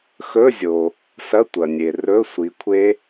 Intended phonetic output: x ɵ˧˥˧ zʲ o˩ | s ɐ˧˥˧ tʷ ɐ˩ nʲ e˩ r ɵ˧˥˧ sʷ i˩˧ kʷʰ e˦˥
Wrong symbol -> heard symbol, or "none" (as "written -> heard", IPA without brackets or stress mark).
none